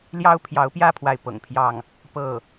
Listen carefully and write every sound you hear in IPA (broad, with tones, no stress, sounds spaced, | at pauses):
l j ɑ˥ ʊ̯ pʰ j ɑ˧˥ ʊ̯ p j ä˥˧ pʰ w a˥˩ ɪ̯ p ɤ̰˨˩ ŋ pʰ j ɑ˥˩ ŋ | p ɤ˥˩